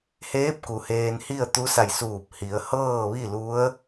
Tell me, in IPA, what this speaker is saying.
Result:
h eː˧˥ p̚ k u˩ h eː˧ n h i˥˨ ə̯ t̪ u˧˥ s a˧˩ j s uː˧˩ p̚ h i˩˧ ə̯ h ɤː˥˨ ʋ i˥˨ l u˧˥ ə̯

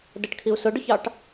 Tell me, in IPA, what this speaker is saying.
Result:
d ə ʈ kʰ i u̯ s ʊ ɖ ʊ ç ɑ ʈ

